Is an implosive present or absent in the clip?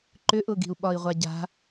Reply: present